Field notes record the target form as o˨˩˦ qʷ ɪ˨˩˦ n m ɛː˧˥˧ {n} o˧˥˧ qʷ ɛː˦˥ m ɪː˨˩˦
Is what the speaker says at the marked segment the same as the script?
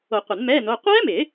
yes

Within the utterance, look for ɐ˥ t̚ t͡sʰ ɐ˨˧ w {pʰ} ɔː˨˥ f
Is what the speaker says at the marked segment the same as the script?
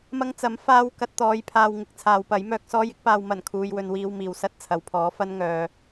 yes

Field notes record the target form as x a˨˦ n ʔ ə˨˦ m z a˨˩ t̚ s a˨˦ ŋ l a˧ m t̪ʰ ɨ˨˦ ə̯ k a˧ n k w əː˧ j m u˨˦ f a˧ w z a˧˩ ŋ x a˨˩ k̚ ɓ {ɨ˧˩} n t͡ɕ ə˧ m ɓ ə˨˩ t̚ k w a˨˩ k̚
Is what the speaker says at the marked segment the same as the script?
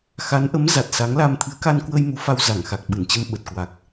yes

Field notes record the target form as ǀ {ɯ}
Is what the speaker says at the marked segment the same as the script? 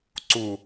no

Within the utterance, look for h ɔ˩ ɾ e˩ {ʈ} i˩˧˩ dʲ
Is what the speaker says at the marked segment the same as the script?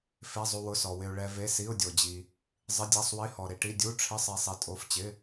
yes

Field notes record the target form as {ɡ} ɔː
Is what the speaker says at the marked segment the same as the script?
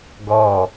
yes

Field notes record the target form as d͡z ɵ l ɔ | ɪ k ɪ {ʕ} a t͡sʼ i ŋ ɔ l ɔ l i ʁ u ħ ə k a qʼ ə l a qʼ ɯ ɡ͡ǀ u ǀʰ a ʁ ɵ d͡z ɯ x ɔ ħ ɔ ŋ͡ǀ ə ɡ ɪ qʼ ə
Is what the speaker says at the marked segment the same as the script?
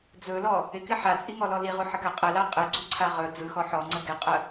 no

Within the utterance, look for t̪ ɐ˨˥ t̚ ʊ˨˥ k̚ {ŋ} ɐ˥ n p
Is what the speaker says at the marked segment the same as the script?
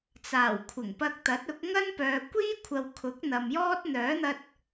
yes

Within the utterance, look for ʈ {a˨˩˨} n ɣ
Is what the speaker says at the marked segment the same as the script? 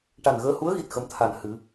no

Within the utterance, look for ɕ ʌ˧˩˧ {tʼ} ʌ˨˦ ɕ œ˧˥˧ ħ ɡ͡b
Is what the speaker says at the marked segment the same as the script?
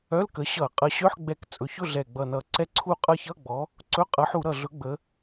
no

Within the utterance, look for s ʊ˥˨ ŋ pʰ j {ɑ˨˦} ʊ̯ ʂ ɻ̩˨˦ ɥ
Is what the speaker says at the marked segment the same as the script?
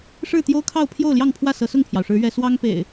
no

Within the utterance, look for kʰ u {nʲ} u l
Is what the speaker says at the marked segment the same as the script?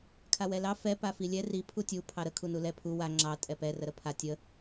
no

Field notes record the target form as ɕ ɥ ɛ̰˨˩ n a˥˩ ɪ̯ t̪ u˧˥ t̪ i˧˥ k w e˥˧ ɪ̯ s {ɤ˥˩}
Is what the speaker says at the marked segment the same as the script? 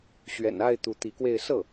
yes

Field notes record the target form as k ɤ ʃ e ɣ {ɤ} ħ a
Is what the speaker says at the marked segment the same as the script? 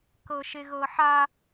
yes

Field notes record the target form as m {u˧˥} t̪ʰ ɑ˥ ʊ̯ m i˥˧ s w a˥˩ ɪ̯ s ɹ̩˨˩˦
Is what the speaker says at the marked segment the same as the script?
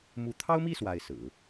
yes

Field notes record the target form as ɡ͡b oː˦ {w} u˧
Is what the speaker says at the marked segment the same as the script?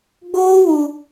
yes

